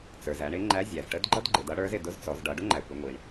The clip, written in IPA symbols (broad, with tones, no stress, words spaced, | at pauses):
t͡sə˞˩zæ˩˧ɳ ɪ˧˥ŋ͡ǃæ˧˥ zʲæ˩zʈə˧˥dɡ͡ǃʌ˥d ɡ͡ǃɪ˩˧dʌ˧˥ɽə˞˧˥z ɪ˩dʊ˧˥zt͡sɔ˩˧z ɖʌ˩˧ɖʊ˥ŋ͡ǃæ˩kʷɪ˩˧ ŋʷi˩ɳ